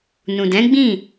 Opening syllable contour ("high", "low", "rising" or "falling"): low